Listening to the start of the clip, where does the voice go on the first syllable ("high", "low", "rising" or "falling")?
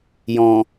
low